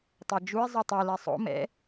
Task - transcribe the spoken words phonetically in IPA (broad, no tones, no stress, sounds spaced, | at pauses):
tˤ ɛ d͡ʒ u i̯ zˤ o tˤ o l ɛ sˤ o̰ m ɛ̰